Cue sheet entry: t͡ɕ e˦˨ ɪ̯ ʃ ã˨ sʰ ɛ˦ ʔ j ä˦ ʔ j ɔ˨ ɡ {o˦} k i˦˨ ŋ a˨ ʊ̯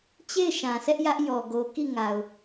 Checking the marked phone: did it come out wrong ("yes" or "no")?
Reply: yes